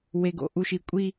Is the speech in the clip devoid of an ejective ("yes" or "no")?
no